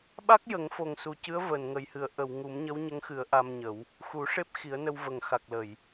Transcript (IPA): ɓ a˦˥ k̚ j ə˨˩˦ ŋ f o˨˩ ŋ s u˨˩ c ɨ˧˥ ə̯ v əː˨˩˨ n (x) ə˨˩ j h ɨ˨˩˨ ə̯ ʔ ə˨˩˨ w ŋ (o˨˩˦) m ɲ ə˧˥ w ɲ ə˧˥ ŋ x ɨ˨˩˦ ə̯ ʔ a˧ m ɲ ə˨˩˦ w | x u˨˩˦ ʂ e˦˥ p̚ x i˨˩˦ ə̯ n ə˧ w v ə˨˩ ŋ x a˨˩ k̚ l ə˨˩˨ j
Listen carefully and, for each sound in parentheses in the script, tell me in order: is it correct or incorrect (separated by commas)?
incorrect, incorrect